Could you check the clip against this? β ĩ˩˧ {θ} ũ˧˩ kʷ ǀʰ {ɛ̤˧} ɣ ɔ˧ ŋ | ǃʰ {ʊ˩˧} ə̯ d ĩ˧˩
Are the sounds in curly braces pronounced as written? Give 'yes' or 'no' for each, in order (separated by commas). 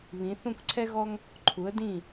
yes, no, no